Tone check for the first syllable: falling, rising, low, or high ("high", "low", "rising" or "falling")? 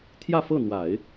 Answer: falling